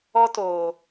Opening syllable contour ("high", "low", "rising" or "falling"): high